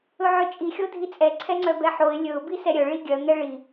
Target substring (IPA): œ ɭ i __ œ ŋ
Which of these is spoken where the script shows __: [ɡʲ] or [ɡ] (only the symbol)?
ɡʲ